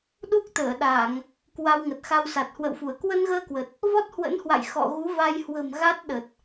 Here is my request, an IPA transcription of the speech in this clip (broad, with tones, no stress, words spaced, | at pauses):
ɗu˦˥k̚t̪əː˧˩ɗa˧˩˨ŋ | kwa˧wŋə˨˩t̚xa˧wsa˨˩t̚ hwə̰˧˨wfu˧˩ə̯ kwə˧nɣəː˧kwə˨˩t̚ | vɔ˦˥t̚hwə̰˧˥nhwa̰˧˨j xɔ̰˧˨ ɣu˨˦va˧j hwə̤˨˩m ɣa˦˥t̚ɗə˨˩t̚